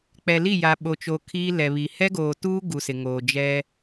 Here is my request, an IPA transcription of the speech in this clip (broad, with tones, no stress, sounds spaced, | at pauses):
k͡p ɛ˨ l i˦˨ j a˨ ɓ o˨ t͡ʃ o˨ kʰ iː˦ l ɛ˨ β i˨ h ɛ˦ ɡ oː˨ t uː˦ ɡ u˨ s ɪ˨ ŋ oː˨ d͡ʒ ɛ˦